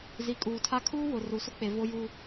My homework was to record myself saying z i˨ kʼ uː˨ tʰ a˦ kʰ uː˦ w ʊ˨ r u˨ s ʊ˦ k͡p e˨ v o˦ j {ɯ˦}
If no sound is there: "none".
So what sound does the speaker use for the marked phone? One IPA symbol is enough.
u˦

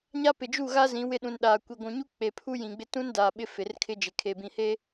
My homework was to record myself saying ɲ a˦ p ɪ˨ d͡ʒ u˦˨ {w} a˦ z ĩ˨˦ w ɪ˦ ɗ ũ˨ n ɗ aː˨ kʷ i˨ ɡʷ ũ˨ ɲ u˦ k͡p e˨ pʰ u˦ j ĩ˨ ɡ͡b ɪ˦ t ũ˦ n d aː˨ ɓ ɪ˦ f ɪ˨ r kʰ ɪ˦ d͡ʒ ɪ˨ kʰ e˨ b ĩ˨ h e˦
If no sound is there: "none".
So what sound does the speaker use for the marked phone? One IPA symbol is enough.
ɣ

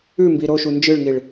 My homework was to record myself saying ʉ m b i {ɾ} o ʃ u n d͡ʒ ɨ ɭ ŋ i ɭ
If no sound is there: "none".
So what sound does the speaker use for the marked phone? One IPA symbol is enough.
ɾ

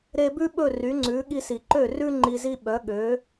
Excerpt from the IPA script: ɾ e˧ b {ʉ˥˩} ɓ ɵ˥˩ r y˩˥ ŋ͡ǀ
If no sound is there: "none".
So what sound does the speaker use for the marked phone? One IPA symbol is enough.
ʉ˥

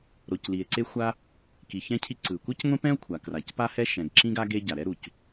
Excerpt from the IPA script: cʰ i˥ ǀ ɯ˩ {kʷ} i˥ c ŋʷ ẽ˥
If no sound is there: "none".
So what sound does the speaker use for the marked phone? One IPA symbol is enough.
kʷ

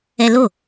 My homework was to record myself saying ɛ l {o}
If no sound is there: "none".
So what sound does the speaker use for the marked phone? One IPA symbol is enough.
o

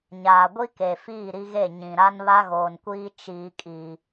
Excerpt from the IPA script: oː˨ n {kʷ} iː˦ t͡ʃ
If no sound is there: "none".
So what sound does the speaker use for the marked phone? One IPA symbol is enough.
kʷ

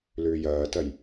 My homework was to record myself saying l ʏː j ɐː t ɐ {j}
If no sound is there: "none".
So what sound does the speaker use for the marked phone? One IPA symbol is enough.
j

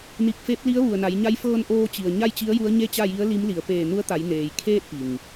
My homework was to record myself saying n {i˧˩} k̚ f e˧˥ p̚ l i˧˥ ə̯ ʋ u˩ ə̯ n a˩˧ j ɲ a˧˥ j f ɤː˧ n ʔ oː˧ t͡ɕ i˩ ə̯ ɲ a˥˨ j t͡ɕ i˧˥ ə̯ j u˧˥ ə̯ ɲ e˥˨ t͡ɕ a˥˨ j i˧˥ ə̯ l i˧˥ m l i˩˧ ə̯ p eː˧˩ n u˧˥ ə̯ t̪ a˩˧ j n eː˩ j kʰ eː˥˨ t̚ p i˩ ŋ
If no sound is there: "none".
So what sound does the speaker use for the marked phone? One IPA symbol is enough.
i˧˩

